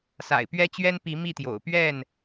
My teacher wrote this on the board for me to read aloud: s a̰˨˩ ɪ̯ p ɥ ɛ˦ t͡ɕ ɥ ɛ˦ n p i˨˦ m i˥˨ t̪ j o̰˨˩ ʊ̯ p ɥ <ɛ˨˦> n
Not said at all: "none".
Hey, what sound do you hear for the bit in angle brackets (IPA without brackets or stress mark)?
ɛ˥˨